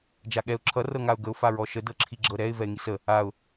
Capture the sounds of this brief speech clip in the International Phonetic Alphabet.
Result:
d͡ʒaɠɛʊ̯ ǁʰʌ rɤŋaʊ̯ɡəʊ̯ faɹɔʃə dɤǁʰiɡ͡ǁɤɾɛɪ̯ vɛɪ̯ŋisə | aʊ̯

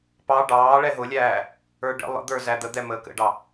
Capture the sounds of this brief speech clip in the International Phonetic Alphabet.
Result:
pɑ ɖɑː ɭɛɦʊlʲæː | ə˞ɖə̰ lˠə̰d̪ə˞ zæd̪əd̪ɛ məːkə̰ɖɑ

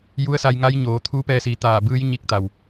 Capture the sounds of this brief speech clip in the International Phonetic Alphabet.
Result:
ju˧˥ə̯sa˧jŋa˧˥j ɲoː˩˧ t̪ʰuː˧˥pɛː˧siː˩˧ t̪aː˧˩bɯː˧˥j ɲi˧k̚t̪a˩w

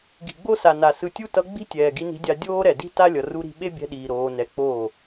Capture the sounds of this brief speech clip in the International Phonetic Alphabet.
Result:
ɡi̤˨ɡ͡bo˦sa˨ na˨sɯ˧tʲu˦ tʌ˧ ɡ͡bi̤˦tʲɛː˨ ɡi˧ni̤˧dʲa˧ dʲoː˦ɾɛ˨di̤˦ ta˦lʲʌ˨ ru˦ɾi̤˦ ɓe˦bʲɛ̤˧ɗiː˨ ɾoː˧nɛ˧k͡poː˦˨

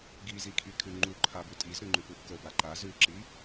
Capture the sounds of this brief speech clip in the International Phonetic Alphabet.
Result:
ɡi zikʰikʰʉŋ͡ǃu ǃʰabʉtʼizɾʉ ŋ͡ǃʉpupkə baǃa zʉǁi

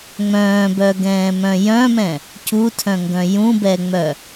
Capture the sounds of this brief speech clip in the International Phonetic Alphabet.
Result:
ŋ͡mœ̃ːbœɡɛ̃ːmœ̃ jœ̃mɛ̃ | cutʰœ̃ŋɡœ̃ jũbɛŋ͡mœ

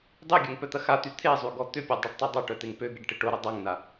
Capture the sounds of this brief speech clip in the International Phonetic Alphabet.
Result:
dˤyɡʲœŋ pœt̪ɐxat̪y t̪ʰezˤy ɡɔt̪ʏpʲø dˤyɖtˤedˤaʈœ t̪eŋpøɡeɖ ʈɪʈoɾʊ dˤɐŋna

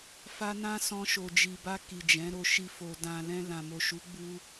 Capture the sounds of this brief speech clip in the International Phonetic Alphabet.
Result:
fa˧nã˦sɔ̃˧ ʃo˨d͡ʒi˨ba˧ ki˨d͡ʒɛ̃˨˦ɾo˧ʃi˧ fo˨dã˨lɛ̃˧ lã˨mo˨ʃu˨˦ ɡ͡bu˧

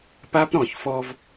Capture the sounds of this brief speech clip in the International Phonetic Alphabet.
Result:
pa˦pɾɔ̃˨çfɔ˦v

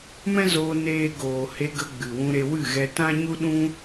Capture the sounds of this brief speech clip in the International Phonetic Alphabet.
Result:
mɛ̃˦zoː˧ neː˦ ɡoː˨he˧ɡə˧ ɡ͡bɨ˨wũ˧ɾe˧wɨ˦˨ ɣɛ˧tã˦ɲu˦ɗũ˦

